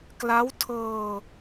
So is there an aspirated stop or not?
yes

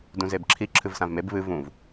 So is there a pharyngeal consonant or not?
no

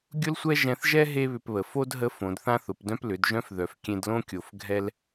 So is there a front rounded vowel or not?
yes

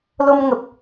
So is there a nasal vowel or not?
no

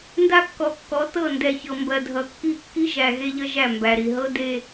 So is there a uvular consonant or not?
no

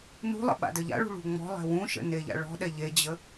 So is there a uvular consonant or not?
no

